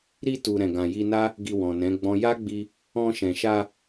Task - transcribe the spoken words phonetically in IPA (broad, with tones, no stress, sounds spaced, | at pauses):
ɾ i˧ t u˨ ɾ ɛ̃˨ ɡ ã˨ j i˧ n a˦ | ɡ i˧ w ɔ̃˨ n ɛ̃˨˦ ɡ͡b ɔ̃˦ j a˦ ɡ͡b i˧ | ɔ̃˧ ʃ ɛ̃˨ ʃ a˧